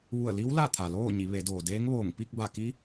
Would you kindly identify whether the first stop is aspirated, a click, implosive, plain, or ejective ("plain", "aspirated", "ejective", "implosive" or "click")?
aspirated